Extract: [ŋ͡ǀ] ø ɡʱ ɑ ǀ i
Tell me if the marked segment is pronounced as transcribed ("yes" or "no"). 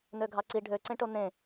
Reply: no